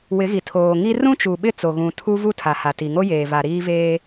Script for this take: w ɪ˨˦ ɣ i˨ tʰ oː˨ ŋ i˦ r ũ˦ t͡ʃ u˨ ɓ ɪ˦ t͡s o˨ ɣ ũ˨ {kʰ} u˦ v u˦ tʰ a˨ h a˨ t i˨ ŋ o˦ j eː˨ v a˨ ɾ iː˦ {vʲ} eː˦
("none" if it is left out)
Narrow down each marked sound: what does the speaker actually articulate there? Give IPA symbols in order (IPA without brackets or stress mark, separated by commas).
tʰ, v